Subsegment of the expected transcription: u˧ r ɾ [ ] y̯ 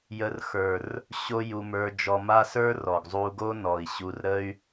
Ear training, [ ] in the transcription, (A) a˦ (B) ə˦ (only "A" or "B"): B